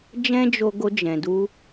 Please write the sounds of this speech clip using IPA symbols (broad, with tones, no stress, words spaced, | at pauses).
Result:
d͡ʒɛ̃˦d͡ʒo˧ ɡo˧ d͡ʒɛ̃˨du˧